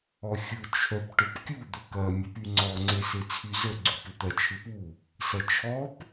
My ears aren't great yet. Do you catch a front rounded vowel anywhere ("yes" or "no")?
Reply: yes